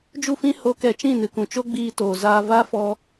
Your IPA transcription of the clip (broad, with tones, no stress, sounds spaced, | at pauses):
d͡ʒ u˦˨ f ĩ˦ h o˦ k ɛ˧ t͡ʃ ĩ˦˨ n ɨ˨ k ũ˨ t͡ʃ o˦ ɡ͡b iː˧ t oː˨ z aː˧ v a˦ f ɔ˧